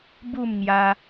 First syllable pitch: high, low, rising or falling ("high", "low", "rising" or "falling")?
falling